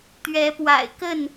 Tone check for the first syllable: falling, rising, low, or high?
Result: rising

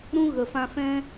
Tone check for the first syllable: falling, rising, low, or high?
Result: high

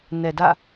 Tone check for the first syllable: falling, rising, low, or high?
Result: low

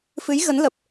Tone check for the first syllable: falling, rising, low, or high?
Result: rising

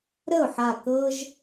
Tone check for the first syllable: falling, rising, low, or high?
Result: falling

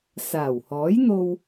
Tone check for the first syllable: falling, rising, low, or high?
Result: low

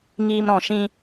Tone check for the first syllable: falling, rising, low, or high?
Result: high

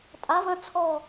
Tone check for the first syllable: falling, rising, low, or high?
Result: rising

